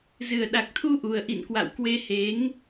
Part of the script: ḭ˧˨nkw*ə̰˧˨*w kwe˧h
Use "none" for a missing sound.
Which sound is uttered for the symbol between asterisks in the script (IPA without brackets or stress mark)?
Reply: a̰˧˨